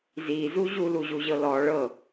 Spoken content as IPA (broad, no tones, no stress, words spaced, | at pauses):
zizu ʑuluʑuʑɤ lɔ ɭɤ